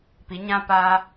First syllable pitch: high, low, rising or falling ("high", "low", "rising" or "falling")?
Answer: rising